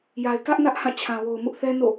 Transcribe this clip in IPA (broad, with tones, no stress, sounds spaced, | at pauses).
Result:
j a˨ ɪ̯ k ä˦ ʔ n ä˦ ʔ h ã˦˨ t͡ɕʰ ã˨ w o˨ ʊ̯ m ʊ˦ ʔ θ ɛ˦ n o̰˦˨